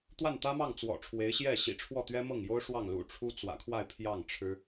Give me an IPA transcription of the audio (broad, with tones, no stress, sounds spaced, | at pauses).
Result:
t̪ w a˥˩ n t̪ ä˥ m ɑ˥˩ ŋ t͡s w ɔ̰˨˩ ʈ͡ʂʰ w e˧˥ ɪ̯ ɕ j ɛ˥˩ ɕ ḭ˨˩ ʈ͡ʂʰ w ɔ˥˩ t̪ ɥ ɛ˥ m ɤ˥˩ ŋ j o˥ ʊ̯ ʂ w ɑ˥˩ ŋ l ṵ˨˩ ʈ͡ʂʰ u˥ t͡s w ä̰˨˩ kʰ w a˥˧ ɪ̯ pʰ j ɑ˥˩ ŋ ʈ͡ʂʰ ɻ̩˥